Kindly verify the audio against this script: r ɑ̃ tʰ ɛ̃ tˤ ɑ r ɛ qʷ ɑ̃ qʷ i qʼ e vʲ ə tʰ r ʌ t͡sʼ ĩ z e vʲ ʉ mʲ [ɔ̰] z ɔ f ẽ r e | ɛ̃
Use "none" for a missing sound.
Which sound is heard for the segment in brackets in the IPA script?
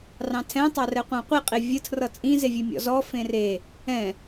ɔ̰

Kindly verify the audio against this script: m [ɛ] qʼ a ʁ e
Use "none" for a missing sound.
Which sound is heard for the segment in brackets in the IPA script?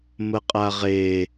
ə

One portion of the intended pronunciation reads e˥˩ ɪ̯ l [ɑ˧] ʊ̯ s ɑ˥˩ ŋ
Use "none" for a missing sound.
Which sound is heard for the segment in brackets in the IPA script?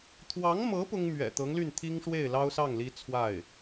ɑ˥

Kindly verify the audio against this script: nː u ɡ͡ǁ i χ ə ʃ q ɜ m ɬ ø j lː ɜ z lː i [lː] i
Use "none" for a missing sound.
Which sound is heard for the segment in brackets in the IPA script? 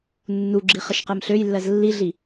ɮ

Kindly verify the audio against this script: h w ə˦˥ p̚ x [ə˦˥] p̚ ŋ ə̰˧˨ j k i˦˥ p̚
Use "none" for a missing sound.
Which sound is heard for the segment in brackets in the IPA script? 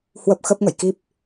ə˦˥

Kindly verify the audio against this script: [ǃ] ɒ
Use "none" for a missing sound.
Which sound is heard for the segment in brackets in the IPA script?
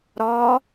ɾ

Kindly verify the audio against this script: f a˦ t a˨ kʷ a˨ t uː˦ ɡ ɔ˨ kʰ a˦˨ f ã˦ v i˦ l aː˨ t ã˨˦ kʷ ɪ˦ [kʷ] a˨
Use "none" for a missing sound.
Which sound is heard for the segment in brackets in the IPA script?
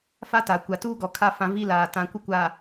kʷ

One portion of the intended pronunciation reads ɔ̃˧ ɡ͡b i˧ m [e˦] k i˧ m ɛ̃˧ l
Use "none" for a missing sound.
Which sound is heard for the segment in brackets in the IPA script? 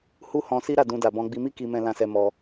i˦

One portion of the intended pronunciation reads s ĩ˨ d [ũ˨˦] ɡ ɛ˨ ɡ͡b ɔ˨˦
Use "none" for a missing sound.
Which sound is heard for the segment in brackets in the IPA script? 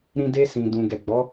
ũ˨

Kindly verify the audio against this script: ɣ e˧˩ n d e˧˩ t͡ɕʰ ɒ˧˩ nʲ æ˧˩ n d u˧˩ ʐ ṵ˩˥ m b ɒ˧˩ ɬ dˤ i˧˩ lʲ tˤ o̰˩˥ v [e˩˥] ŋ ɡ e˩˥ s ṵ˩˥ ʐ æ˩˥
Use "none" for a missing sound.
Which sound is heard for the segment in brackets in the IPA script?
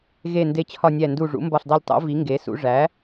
i˩˥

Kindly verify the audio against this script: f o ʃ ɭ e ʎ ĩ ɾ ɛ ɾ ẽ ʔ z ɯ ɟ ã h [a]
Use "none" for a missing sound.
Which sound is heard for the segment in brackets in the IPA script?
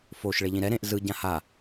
a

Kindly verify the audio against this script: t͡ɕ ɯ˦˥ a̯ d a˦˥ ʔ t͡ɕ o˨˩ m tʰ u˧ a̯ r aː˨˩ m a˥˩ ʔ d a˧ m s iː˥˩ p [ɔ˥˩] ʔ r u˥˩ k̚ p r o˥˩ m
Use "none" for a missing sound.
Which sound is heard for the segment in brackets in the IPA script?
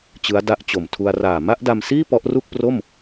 ɔ˦˥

